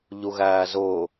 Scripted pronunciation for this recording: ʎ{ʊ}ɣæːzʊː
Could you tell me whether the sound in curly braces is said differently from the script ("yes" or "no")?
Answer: yes